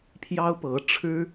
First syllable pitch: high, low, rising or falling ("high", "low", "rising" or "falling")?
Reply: high